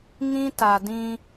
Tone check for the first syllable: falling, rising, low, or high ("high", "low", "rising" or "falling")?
high